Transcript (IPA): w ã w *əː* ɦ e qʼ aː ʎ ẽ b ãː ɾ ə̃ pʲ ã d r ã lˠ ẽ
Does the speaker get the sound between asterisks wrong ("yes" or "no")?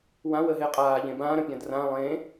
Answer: no